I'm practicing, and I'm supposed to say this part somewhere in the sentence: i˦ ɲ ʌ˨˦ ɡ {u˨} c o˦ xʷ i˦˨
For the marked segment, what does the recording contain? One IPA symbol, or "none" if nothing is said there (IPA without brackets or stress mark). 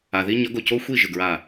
o˨